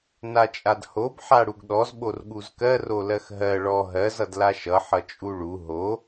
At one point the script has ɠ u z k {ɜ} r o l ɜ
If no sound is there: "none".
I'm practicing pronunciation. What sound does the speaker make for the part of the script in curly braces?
ɜ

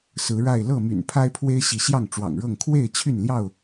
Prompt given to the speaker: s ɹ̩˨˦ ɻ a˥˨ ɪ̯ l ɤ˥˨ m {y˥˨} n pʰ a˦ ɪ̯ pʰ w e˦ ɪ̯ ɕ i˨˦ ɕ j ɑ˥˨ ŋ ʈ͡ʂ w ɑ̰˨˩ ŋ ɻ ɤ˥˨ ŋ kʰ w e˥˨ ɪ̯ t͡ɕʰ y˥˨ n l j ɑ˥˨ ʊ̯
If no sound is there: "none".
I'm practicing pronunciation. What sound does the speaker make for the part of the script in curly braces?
y̰˨˩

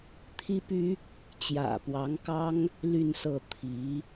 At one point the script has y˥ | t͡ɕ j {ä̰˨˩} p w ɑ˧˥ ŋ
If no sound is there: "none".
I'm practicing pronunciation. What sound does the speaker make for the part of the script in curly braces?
ä̰˨˩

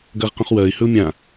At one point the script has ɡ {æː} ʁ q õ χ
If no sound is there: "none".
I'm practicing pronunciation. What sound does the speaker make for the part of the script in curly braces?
ɐː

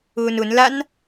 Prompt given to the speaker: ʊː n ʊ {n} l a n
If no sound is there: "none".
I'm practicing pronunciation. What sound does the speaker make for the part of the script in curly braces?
n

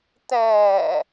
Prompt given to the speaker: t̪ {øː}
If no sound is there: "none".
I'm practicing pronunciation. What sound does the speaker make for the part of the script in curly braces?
ɛː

